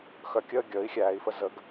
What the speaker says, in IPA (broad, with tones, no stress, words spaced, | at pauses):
xœ˩˧˩kʲəː˦˨ ɡʲəː˩˥i̯xʲæː˩˧i̯fə˦˨ zə˩˥ɡ